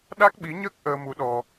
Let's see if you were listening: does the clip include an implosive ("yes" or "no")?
yes